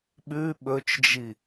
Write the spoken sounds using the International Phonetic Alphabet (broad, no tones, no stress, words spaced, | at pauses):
ɓʉ ɓɵt͡ʃd͡ʒi